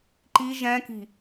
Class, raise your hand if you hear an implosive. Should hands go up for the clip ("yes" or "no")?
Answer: no